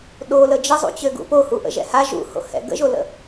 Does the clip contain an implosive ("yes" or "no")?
yes